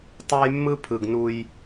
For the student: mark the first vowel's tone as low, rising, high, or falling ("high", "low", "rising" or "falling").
high